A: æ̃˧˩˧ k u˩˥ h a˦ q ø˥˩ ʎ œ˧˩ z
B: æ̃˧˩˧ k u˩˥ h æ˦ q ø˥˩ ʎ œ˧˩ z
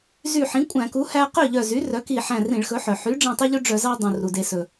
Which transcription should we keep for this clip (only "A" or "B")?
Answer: B